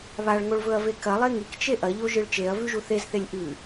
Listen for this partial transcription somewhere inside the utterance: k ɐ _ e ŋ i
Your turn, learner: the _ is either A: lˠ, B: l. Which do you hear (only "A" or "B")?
A